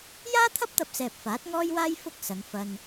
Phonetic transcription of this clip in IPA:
j aː˥ t̪ʰ ɐ˥ p̚ t̪ ɐ˧ p̚ s ɛː˨ p̚ f aː˨˥ t̚ ŋ ɔː˥ j w aː˥ j f ʊ˥ k̚ s ɐ˨˧ ŋ f ɐ˧ n

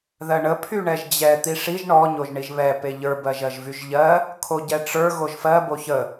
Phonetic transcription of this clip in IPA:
ð ɜ ɳ ə pʰ y ɳ ɛ ʒ d͡ʑ ɛ t̪ i ʂ i ʒ ɳ ɔ ɲ o ʒ ɳ i ʒ β ɛ p e ʎ ə˞ b ɜ ʒ ɜ ʒ v y ʒ ʎ ɜ | kʰ o ɟ ɛ ʈ͡ʂ ə˞ ɣ o ʒ f ɜ b o ç ə

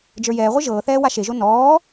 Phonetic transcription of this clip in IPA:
d͡ʒ ə˞ j ɛː ʁʷ ɨ ʒ ɤː θ ɛː w a ʃ e ʒ o n ɔː

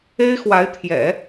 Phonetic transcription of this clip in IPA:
e˥ ɪ̯ x w a˧˥ ɪ̯ t̪ʰ j ɛ̰˨˩˦

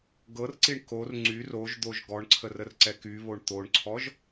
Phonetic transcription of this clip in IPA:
ɡ ɤ r ǀ i ɳ k o r ŋ͡ǀ y r o ʒ d̪ o ʒ ɡ ɔ ɳ ǀʰ ə r ə r ǀ ɛ k y β o ɳ t̪ o ɳ ǀʰ ɔ ʒ

